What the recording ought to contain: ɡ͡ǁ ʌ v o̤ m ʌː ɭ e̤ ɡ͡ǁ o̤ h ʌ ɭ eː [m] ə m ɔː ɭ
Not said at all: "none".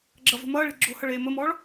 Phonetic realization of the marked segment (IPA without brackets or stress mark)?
m